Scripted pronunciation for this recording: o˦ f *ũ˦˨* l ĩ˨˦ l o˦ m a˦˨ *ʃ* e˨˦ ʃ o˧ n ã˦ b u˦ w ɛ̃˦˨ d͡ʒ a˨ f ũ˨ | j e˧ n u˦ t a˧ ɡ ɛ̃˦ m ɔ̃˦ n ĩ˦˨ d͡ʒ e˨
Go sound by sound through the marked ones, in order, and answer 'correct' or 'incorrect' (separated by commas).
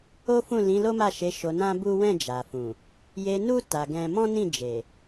correct, correct